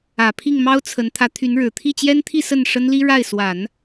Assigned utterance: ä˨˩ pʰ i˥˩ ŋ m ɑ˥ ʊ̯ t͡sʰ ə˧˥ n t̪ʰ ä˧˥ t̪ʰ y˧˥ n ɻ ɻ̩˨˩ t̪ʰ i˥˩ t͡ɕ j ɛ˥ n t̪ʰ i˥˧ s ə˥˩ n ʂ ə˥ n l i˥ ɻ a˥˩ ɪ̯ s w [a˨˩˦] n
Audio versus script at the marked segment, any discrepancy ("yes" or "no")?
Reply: no